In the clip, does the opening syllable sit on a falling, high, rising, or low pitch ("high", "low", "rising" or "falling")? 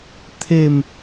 falling